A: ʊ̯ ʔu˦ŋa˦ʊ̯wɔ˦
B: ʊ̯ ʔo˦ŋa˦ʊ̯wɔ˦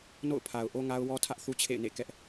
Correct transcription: B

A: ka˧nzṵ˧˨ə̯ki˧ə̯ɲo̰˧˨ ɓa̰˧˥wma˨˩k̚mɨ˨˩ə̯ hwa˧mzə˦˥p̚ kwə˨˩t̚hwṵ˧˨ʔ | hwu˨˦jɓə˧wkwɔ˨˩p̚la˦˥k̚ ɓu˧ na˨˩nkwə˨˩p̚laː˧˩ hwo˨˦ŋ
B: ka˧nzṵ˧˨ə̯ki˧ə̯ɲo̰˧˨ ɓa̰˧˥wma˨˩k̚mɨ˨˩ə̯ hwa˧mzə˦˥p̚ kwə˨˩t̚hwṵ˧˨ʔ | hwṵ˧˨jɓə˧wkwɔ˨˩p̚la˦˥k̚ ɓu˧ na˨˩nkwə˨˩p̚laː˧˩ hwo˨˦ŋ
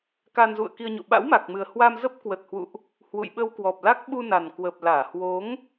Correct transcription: B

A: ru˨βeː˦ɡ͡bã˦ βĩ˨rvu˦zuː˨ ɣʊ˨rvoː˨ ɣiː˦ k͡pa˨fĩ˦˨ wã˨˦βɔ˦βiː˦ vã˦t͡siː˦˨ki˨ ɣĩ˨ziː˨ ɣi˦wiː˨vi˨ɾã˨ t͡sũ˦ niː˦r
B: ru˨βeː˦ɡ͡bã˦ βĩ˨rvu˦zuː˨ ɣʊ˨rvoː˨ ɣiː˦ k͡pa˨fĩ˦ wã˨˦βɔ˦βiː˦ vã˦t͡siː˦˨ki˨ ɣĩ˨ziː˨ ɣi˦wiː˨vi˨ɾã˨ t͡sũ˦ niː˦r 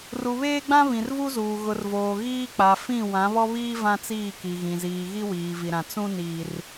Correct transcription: A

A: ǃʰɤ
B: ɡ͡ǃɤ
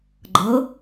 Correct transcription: B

